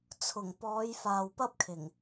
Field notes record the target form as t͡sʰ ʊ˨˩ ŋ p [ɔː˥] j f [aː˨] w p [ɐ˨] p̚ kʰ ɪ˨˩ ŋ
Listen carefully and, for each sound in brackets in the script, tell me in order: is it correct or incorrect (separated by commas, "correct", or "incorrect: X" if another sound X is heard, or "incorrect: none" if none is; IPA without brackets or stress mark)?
incorrect: ɔː˨˧, correct, incorrect: ɐ˥